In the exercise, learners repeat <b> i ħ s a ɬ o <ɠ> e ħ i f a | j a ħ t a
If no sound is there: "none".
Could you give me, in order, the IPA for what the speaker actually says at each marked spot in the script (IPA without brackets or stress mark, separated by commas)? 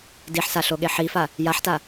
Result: d, ɠ